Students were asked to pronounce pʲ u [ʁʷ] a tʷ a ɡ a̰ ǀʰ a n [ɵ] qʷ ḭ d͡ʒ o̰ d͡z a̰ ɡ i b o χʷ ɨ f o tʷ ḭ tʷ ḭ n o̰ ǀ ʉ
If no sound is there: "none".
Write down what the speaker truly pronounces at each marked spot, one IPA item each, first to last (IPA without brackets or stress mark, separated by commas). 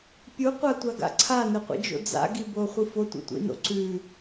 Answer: qʷ, ɵ